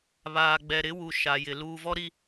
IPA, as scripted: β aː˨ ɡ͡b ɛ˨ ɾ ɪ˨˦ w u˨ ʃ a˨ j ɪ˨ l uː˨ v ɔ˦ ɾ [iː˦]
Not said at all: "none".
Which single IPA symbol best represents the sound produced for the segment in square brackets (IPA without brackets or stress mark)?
i˦